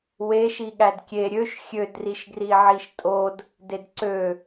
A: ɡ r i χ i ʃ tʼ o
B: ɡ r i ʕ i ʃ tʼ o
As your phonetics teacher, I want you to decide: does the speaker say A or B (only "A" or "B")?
B